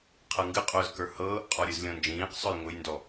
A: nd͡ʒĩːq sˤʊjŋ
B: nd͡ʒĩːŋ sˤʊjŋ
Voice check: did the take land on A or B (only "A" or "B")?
A